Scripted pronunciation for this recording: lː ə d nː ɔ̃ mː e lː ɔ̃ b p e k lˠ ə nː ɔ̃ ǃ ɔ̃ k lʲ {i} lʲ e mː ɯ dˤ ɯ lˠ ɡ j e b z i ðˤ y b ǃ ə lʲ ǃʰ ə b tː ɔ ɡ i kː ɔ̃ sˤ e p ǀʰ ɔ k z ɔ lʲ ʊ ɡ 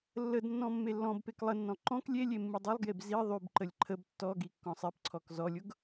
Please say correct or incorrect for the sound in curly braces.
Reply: incorrect